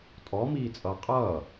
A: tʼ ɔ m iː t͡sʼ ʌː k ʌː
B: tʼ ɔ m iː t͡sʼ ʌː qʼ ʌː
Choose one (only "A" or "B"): B